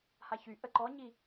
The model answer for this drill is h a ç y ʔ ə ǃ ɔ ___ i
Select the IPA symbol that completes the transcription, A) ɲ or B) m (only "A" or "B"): A